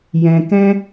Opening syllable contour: low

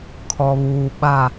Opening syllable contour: low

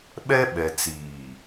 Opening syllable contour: high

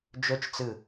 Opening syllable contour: high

